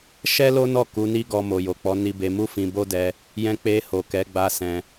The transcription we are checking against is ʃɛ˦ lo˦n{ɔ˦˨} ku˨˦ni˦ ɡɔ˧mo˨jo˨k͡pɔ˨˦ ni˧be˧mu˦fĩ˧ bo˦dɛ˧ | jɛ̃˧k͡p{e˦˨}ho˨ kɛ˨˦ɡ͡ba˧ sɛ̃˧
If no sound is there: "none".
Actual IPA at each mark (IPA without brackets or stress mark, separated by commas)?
ɔ˦˨, e˧